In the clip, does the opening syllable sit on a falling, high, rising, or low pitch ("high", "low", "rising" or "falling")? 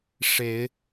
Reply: rising